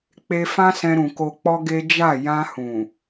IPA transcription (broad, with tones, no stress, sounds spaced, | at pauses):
k͡p e˧ f ã˦ s ɛ̃˧ ɾ ũ˨ k o˧ k͡p ɔ˦ ɡ e˦ d͡ʒ a˦˨ j ã˧ h ũ˨